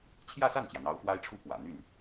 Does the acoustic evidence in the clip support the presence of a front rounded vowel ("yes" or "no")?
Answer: yes